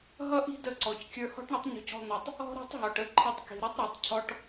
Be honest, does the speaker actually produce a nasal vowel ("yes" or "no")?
no